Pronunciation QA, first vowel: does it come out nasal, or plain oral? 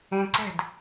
nasal